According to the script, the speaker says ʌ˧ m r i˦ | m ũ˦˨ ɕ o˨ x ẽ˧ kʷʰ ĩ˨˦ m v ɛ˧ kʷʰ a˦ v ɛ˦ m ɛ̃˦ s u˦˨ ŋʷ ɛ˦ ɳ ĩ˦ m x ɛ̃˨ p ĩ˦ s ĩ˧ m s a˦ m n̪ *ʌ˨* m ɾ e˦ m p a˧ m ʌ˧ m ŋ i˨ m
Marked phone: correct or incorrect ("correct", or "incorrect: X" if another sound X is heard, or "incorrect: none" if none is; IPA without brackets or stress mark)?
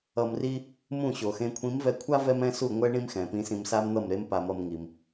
incorrect: ʌ˦˨